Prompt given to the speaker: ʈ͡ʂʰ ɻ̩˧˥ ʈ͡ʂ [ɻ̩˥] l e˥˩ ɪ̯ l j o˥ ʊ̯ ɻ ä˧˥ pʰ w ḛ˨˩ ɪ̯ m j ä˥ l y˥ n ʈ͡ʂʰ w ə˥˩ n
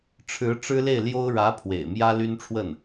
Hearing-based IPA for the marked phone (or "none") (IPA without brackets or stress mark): ɻ̩˥